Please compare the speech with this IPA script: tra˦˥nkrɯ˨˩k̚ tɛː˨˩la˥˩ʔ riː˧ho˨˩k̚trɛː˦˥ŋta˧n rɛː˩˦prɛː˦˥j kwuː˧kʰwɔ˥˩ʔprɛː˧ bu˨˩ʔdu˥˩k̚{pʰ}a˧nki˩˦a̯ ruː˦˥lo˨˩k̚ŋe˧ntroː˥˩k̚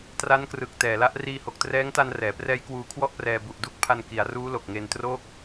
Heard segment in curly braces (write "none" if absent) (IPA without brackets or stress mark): pʰ